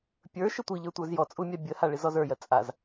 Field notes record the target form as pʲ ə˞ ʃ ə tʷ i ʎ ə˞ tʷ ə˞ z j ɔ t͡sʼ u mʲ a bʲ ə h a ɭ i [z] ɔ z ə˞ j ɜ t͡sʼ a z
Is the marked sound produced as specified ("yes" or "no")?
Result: yes